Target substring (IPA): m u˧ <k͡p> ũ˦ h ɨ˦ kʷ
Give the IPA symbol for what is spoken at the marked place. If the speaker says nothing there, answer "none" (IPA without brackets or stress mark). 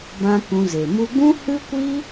ɡ͡b